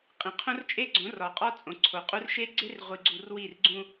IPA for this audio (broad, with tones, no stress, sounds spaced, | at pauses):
qʼ ĩ˨ qʰ õ˦ r t͡ʃʼ e˦ ɡ͡ǀ õ˨˦ r ɒ˨ qʼ ɒ˦ t͡sʼ õ˨ ǀʰ o˨ qʼ u˦ r ʃ e˦ ɡ͡ǀ e˦ r ʁʷ i˨ ɡ͡ǀ u˨ r w i˦˨ r ɡ͡ǀ ũ˦